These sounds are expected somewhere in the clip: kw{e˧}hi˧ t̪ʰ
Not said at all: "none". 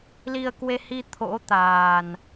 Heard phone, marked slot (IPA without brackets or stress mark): e˧